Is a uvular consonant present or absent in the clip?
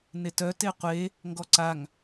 present